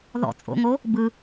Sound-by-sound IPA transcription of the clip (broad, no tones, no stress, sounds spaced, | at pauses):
ð ɔ̰ t͡sʼ o̰ ŋ o | b ɯ